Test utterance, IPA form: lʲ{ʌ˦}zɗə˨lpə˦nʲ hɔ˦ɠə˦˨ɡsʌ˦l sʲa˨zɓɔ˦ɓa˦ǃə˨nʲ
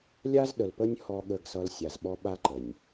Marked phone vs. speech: incorrect: a˦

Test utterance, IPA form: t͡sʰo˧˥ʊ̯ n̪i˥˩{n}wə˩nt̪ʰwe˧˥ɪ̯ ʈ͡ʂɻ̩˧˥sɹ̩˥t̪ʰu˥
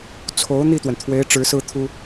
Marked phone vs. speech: incorrect: t̪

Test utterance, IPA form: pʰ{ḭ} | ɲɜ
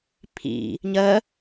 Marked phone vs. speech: correct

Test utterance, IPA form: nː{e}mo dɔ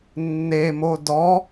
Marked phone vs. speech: correct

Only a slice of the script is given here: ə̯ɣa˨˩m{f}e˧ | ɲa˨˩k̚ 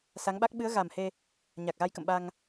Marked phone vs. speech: incorrect: h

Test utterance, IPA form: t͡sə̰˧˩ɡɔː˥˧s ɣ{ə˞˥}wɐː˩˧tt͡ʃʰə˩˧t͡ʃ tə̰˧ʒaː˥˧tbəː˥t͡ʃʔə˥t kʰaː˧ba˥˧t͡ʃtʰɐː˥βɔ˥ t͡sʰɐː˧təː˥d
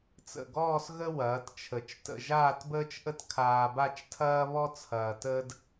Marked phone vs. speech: incorrect: ə˥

